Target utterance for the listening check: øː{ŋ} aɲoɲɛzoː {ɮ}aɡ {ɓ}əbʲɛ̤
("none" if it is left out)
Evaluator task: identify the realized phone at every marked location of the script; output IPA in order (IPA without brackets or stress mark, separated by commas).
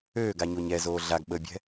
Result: ɡ, ɮ, ɓ